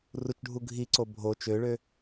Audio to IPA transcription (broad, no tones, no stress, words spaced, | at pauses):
rut͡ʃɖʱu ɡʱiǀo bʱo t͡ʃøɭø